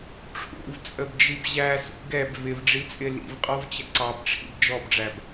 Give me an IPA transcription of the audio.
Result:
ʈ͡ʂʰ ṵ v t͡sʼ ə b d͡ʒ i b ʑ æ s ṵ ɡ ɛ b v ɪ v ɖ͡ʐ i t͡sʼ ɪ l ḭ v qʼ ɔ v t͡ɕ ə ǀ ɑ b ʈ͡ʂʰ ḭ b d͡ʒ ɔ b ɖ͡ʐ æ b

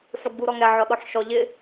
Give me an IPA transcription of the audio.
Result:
ħ u ɡ͡b u ɾ ɔ ŋ ɛ ʕ ɔ ɗ ɔ ħ ʃ ɔ ʎ ɪ

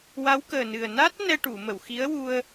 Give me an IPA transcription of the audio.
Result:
w a˧˥ w k əː˨˩ n ɨ˨˩ ə̯ n a˦˥ t̚ n ɛ˧ ʈ u˨˩˨ m ə˨˩˨ w x i˧˥ ə̯ w u˧ ə̯

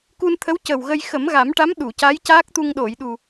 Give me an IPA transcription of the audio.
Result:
k u˧ n t̪ʰ ə˧˥ w c ə˨˩ w ɣ ə˧ j x ə˨˩˦ m ɣ a˨˩˦ m ʈ a˧˥ m ɗ u˨˩˨ c a˧˥ j c aː˦˥ k̚ t̪ u˧ ŋ ɗ o˨˩˨ j ɗ u˨˩

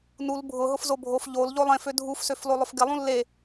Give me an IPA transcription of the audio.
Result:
n u l bʱ ʊ ɦ ʊ f z o bʱ o f ʎ o l ʎ o lˠ ẽ f ø dʱ u f s ø f l o lˠ ʊ f ɡ ɪ lˠ ũ lː e

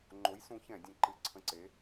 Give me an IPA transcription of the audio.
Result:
ŋ͡ǃ o˨˥ j s ũ˨˥ ç ɛ̃˧˩˧ dʲ ɛ̃˨˥ ǃ ɨ˨˥ ǀʰ ə̃˧˩ ǀ e˨˥

